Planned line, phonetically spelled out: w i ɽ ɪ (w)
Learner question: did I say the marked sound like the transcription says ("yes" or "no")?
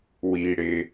no